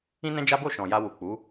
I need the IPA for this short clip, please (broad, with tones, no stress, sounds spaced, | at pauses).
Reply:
ĩ˦ n ɛ̃˦ d͡ʒ a˦ b o˦˨ ʃ ɔ̃˨ j a˧ w u˨ k͡p u˨˦